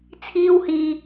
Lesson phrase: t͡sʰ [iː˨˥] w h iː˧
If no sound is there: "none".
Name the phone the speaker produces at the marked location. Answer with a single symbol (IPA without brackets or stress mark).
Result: iː˥